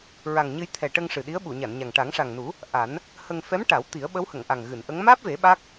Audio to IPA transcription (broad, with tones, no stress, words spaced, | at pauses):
ɹa˨˩ŋɲɨ˧j t̪ʰɛ˨˩ʈə˧ŋ ʂɨ˨˩ɗi˧˥ə̯ ɓu˨˩˨ɲa˨˩˨nɲa˨˩ŋ ʈa˨˩˦ŋʂa˨˩ŋnu˨˩˦ | ʔa˨˩˦n | hə˧ŋ fɛ˧˥mʈa˨˩˦w t̪i˨˩˦ə̯ɓə˧˥whə˨˩˨ŋʔa˨˩ŋ ɣɨ˨˩˨nʔə˧˥ŋ maː˦˥p̚ve˨˩˦ ɓa˦˥k̚